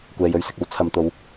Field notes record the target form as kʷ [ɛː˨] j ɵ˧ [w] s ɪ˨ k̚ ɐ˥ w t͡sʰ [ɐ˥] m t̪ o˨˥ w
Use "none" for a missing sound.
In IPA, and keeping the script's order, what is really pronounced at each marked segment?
ɛː˨, ɥ, ɐ˨

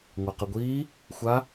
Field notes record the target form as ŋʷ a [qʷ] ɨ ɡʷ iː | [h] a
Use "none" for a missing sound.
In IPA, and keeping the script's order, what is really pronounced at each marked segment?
q, xʷ

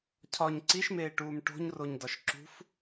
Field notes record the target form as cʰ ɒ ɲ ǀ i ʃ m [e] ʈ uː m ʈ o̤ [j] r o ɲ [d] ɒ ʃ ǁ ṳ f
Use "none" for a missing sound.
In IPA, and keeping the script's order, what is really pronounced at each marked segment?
eː, ɲ, d

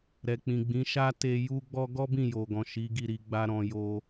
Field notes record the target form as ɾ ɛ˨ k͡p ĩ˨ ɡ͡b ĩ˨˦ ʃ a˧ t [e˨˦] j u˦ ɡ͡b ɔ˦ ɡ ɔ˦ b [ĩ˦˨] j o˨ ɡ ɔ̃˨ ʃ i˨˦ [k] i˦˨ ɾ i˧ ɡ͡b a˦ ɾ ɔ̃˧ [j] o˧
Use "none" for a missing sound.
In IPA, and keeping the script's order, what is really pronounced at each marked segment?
e˧, ĩ˦˨, ɡ, j

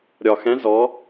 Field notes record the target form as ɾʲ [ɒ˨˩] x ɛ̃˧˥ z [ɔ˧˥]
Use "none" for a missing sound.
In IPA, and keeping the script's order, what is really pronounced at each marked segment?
ɒ˨˩, ɔ˧˥

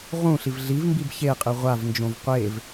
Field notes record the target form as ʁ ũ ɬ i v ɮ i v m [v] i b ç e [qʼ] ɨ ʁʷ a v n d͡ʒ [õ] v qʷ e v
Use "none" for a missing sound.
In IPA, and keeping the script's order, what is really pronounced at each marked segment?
b, qʼ, õ

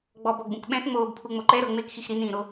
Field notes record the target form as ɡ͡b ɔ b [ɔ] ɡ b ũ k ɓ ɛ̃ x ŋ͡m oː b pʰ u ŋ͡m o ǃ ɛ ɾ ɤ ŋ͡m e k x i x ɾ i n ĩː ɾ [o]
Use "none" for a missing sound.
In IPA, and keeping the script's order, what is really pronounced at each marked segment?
ɔ, o

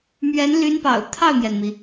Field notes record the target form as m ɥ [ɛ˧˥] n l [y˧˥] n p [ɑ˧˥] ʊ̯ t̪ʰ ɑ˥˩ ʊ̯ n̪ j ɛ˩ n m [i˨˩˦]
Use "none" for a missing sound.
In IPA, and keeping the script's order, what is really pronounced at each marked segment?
ɛ˧˥, y˧˥, ɑ̰˨˩, i˩

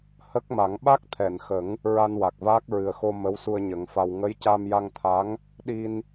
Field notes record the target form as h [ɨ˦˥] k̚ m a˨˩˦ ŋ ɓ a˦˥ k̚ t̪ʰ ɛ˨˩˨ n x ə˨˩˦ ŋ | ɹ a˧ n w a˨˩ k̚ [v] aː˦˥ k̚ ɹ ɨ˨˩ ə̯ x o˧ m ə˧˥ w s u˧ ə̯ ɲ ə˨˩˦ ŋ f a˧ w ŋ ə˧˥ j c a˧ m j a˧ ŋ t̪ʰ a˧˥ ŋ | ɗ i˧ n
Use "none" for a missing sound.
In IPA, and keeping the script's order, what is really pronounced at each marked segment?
ə˦˥, v

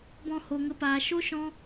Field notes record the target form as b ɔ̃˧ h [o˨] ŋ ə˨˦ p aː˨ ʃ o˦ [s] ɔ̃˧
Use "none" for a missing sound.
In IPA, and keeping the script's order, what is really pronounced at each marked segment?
o˨, ʃ

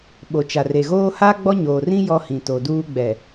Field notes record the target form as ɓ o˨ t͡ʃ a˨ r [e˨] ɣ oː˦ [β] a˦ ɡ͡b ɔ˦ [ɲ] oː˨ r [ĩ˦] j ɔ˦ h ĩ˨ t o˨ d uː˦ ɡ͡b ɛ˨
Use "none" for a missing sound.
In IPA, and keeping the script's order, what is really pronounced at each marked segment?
e˨, h, ɲ, ĩ˦

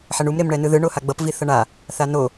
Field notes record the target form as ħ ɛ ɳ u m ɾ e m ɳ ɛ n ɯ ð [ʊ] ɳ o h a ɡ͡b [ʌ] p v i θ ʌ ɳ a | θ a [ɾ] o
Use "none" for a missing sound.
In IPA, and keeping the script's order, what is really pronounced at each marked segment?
ɯ, ʌ, n

